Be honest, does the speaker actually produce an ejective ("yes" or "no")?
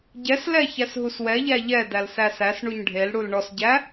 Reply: no